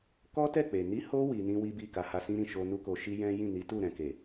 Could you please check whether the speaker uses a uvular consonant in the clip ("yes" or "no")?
no